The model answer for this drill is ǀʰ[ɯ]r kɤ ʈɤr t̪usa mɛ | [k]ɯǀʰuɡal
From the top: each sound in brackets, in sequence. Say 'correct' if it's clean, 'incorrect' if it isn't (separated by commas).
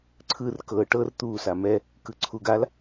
correct, correct